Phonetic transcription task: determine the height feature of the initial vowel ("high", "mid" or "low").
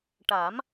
low